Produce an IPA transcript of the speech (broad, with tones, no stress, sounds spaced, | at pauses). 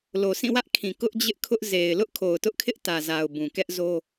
l o˨ s ĩ˦˨ w ä˦ ʔ kʰ ĩ˨ k ʊ˦ ʔ d͡ʑ ɪ˦ ʔ kʰ ʊ˦ ʔ z e˨ ɪ̯ l ʊ˦ ʔ kʰ o˨ ʊ̯ t ʊ˦ ʔ kʰ ɪ˦ ʔ t ä˨ z a˨ ʊ̯ b ũ˨ k ɛ˦ ʔ z o˦